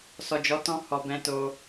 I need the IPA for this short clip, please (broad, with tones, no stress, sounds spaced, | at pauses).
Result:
s ɔ˨ d͡ʒ ɔ˨˦ t ɔ̃˧ h ɔ˨ b ɛ̃˧ t o˧